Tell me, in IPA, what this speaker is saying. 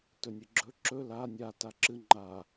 t ɵ nʲ ɨ ɡ͡ǁ ɵ ǁ ɵ l a nʲ a t a ǁ ɨ ŋ͡ǃ a

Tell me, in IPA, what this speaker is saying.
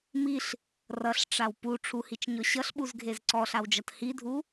m i ɬ | r ʌ ɬ ʈ͡ʂ a w p u ʈ͡ʂʰ u h i t͡ʃ ɲ ɔ ɕ ʌ ɬ ɓ u z ɡʱ e z ǀ ɔ ɬ a w d͡ʒ ʌ t h i dʱ u

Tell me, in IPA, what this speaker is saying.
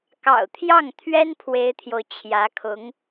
k ɑ̰˨˩ ʊ̯ t̪ʰ j ɑ˥˩ ŋ t̪ʰ ɥ ɛ˥ n pʰ w e˥ ɪ̯ t̪ʰ j o˨ ʊ̯ t͡ɕʰ j ä˧˥ kʰ ʊ˧˥ ŋ

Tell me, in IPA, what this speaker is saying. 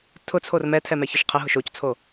tʰ ʊ t͡sʰ o r m ɛ tʰ ɛ m ɛ ç ʊ ʃ qʰ ə ɦ ʊ ʃ o c t͡sʰ o

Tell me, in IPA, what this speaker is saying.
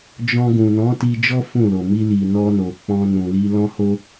d͡ʒ ɔ̃˧ ɡ ũ˨ n ɔ̃˨˦ t i˧ d͡ʒ ɔ˦ f ũ˦˨ l o˨ m i˧ l i˨ n ɔ˧ n o˨ k͡p ɔ̃˧ n ũ˨ l i˧ l ɔ̃˦ h o˦

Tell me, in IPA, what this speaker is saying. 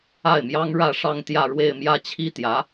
a˥˩ ɪ̯ m j ɑ˥ ŋ ɻ ä˥˧ ʂ ɑ˥˧ ŋ t̪ j ä˥˧ ɻ w e˥˧ ɪ̯ m j ä˥˩ t͡ɕʰ i˥ t̪ j ä˧˥

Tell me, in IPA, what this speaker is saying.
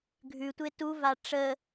ɡʱ ʉ tʷ e t u v a ʈ͡ʂ ə

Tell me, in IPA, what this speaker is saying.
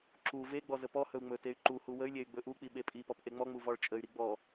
ǁ u v e ɡ͡b ɔ z ə p ɔ h ɵ u̯ ŋ͡m ɵ t e y̯ ǃ u h u w ə y̯ lʲ e y̯ ɡ͡b ɵ ʔ u k͡p i ɓ e pʼ i p ɔ p ʔ e ŋ͡m ɔ ŋ͡m u v ɔ ɭ t͡ʃʼ ə y̯ ɾ i ɡ͡b ɔ

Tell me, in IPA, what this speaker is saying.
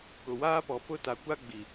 k ʊ˨ w aː˦ p ɔ˨ p ʊ˦ t a˨ kʷ a˦ ɡ͡b i˨

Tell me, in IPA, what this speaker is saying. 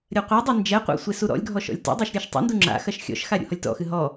ɾʲ ɐ qʷ a dˤ e n d͡ʒ ɛ qʷ a̰ sʷ e s u ɾ ɔ̰ lʲ ɡʱ ɔ ʃ ɔ̰ lʲ t ṵ dˤ a ʃ ɾʲ ɐ ʃ tˤ ṵ n d u ŋ͡ǁ a̰ x ɐ ʃ xʲ ɔ̰ ʃ x a ɾʲ ṵ h ɔ lʲ t ɔ̰ x ɨ ɦ ɔ

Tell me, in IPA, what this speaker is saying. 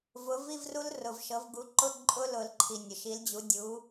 v ʊ˩˥ v i˧˥˧ v r u˦˥ l r ʊ˩ v ʃ ɤ˩˥ v ɡ u˩˥ ǃ ʊ˧˥˧ ǃʼ ʊ˧˥˧ l ʊ˨˩˦ l ǃʰ i˩ nʲ ʊ˩ ʃ i˩˥ l d͡ʑ u˩˥ dʲ u˩˥

